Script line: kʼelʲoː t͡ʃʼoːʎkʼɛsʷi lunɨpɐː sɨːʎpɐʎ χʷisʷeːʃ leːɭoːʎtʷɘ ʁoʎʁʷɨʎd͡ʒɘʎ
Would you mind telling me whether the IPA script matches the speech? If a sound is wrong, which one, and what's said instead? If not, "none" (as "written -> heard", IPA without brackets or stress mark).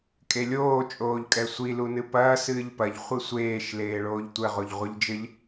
none